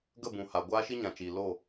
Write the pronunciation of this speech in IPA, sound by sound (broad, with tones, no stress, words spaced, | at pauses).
ɡə˦˨bũ˨ha˨ ɡʷaː˦ʃi˦ɲã˨t͡ʃiː˨ lo˦˨